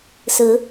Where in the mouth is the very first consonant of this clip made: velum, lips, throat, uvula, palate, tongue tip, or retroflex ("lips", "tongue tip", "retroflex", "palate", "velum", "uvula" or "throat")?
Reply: tongue tip